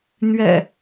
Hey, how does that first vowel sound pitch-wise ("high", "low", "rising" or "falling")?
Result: low